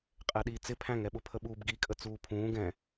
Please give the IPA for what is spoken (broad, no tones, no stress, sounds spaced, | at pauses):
qʼ ɛ ɗ iː t͡s ɪ pʰ æ̃ ŋ ɛ ɓ ʊ pʰ ə ɓ uː b ɡ i kʼ ə t͡s uː pʰ ũː ɡ ɛ̃